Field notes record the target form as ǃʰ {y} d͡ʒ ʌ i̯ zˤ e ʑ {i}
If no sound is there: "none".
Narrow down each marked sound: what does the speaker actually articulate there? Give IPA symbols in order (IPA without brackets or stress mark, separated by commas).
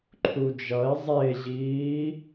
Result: u, iː